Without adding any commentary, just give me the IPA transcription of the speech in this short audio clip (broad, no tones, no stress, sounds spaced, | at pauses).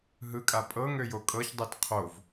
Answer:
ɦ ɯ kʼ a pʼ ɤ ŋ ø j o kʼ ɤ ç dˤ ɛ t qʰ o v